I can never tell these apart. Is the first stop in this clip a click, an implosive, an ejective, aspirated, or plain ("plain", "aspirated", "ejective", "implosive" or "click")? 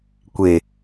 plain